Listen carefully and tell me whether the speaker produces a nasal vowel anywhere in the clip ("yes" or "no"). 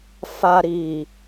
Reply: no